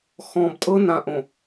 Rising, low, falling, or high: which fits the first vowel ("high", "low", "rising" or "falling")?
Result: low